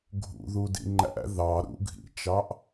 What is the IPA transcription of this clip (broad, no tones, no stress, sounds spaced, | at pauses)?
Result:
ɡʱ ṵ ð u d ḭ ŋ͡ǃ æ̰ ð ɑ ɾ ṵ ɡʱ ḭ t͡ʃ ɑ ʔ